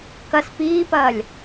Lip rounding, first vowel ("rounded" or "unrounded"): unrounded